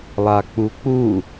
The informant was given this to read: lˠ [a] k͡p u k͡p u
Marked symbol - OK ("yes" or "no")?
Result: yes